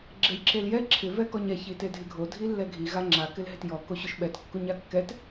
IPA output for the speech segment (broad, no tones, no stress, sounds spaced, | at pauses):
ɡ͡ǁ e j ǁ e l j ɛ ǁʰ ɪ v ɛ k ɔ ɲ ɛ ç i t e dʱ ɪ ɡʱ o dʱ i lː ɛ ɡʱ i ɣ a ŋ͡ǁ a k ɪ l ɦ ɪ t j ɔ k o ɕ ʊ ʃ ɓ ɛ t kː u ɲ a kː ɛ t